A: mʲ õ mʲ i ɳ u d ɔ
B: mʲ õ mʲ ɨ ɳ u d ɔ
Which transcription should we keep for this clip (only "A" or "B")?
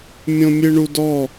B